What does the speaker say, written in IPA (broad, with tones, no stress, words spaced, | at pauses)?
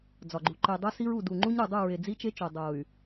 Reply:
d͡zɒ˨ɡ͡ǃu˨ ǃe˨ dˤo˦si˦ɹu˨ du˨ŋ͡ǃu˦ɲ ɾu˨dˤu˦˨ɹe˨ d͡zi˦t͡ʃe˦t͡ʃo˨ dˤo˨y̯